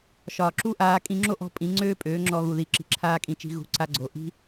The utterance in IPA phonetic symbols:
ʃ ɒː˨ ǁ u˦ ʔ aː˧ kʼ ĩ˧ ŋ͡ǁ o˦ ʔ ɔ̤˧ pʼ ĩ˨˦ ŋ͡ǀ øː˦ pʼ øː˨˦ ŋ͡ǁ ɔ˧ ɣ u˨ ð i˧ ǁ i̤˧ ǁʰ aː˦ kʼ ĩ˧ t͡ʃ i̤˧ ɣ ṳ˨˦ ǀ a˧ ɡ͡ǀ o˨ ʔ i̤˦

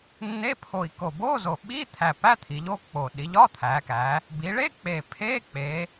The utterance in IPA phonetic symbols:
nː e˧˥˧ pʰ o˨˩ i̯ k o˨˩ b oː˧˥˧ z o˨˩ ɓ iː˧˥˧ t̪ʰ æ˨˩ p æ˧˥˧ t̪ʰ i˩˧ ʎ oː˧˥˧ k k͡p oː˨˩ ɗ i˩˧ ʎ ɒː˧˥˧ t̪ʰ æː˩˧ k æː˩˧ | b i˩˧ ɭ e˧˥˧ k͡p e˨˩ pʰ eː˧˥˧ k͡p eː˩˧

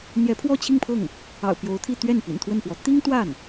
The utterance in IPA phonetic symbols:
n̪ j ɛ˧˥ pʰ w ɔ˥˧ t͡ɕʰ i˥˧ ŋ pʰ ɤ˥˩ ŋ | ɑ̰˨˩ ʊ̯ p j o˧˥ ʊ̯ t̪ʰ i˥˧ t̪ ɥ ɛ˥˩ n p ḭ˨˩ n t̪ʰ w ə˥˩ n p w ɔ˧˥ t̪ i˥ ŋ t̪ w a˥˩ n

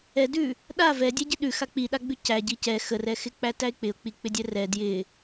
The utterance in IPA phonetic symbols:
ɛ d ʉ | ɗ a v ɛ dʲ ɛ ɟ ɪ ɗ ʉ x a k͡p i ɗ a ɡ͡b ʉ c æ ɟ i c ɛ x ə r ɛ x ɪ k͡p æ t æ ɪ̯ k͡p ɪ ʊ̯ k͡p i k͡p ɪ dʲ ɛ r ɛ d j ɪ

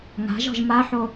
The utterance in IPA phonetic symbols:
ŋ a̤ ʒ ɔ̤ ʒ m a ħ o

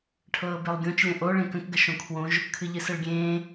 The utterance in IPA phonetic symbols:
ʈʰ ɤː b e lˠ ɡʲ õ t͡ʃ lʲ ə̃ ʔ o ɭ ẽ k ə̃ k ɡ ə ʃ õ kʰ w õ ʒ | kʰ ɨ ʎ ɨ s ə ɭ ɡʲ ẽː

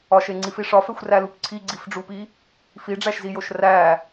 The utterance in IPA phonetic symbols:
ɒ ʃ e ŋ͡ǀ i f i ʂ ɒ f e xʷ r æ l u p ǀʰ i ɡ͡ǀ i f ɖ͡ʐ u p i | f i ɖ͡ʐ æ ʃ z i j o ʃ r æ

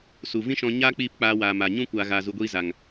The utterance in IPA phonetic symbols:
s u˨ v ĩ˦ ʃ ɔ̃˧ ɲ aː˦ k͡p iː˦˨ p k͡p aː˧ w aː˨ m a˨ ɲ ũ˦ kʷ aː˧ ɣ aː˧ z u˧ ɡʷ iː˦ z a˨ ŋ

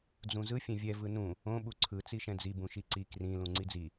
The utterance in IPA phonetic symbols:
d͡z ũ z ɯ fʲ ɛ̃ vʲ ɛ v ɯ n ũ | õ ɓ u ǀʰ ɯ t͡s i ʃ ɛ̃ d͡z i b ũ ʃ i ǀ i k r ĩ l ũ ŋ͡ǀ i d͡z i

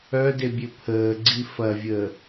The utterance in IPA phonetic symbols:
œ d e bʲ ø pʰ əː ɡ͡ǀ i f ɐ vʲ əː

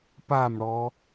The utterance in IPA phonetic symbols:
p a m ɽ ɔ

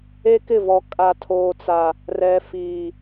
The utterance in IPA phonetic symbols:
e˦ k ɪ˦˨ v ɔ˨ kʼ a˨ tʰ oː˨ t͡s a˨ | r ɛ˨ f iː˨

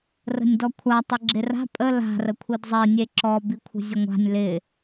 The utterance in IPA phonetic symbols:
r ə̤ nʲ d ɔ kʷʰ a tˤ ɪ ɡ͡ǁ ɪ r a̤ pʼ ə l a̤ r ə kʷʰ i d zˤ e nʲ e ǁ ɔ b i kʷʰ ə̤ zʲ ə ŋʷ a̤ nʲ l ɪ

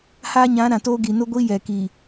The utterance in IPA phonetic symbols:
h aː˦ ɲ ã˨˦ ɾ ã˨ t oː˦ ɡ i˨ n ʊ˦ ɡʷ i˦ j ɛ˨ k i˨

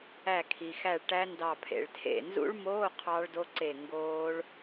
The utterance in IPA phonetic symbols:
æ˧˩ kʰ i˩ x æ˧˩ ɭ ʈ æ˦˥ n d ɑ˧˩ pʰ ḛ˩ ɭ tʰ ḛ˧˩ n z ṵ˦˥ ɭ m oː˧˥˧ qʰ ɑ˦˥ ɭ d o˦˥ ǀ e˧˩ ŋ ɡ oː˦˥ ɭ

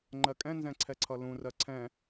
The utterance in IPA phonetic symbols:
ŋ͡ǃ ɜ kʼ ɛ̃ n z ɛ̃ ǀʰ ɛ ǀʰ ʌ l ũ r ɜ ǀʰ ɛ̃

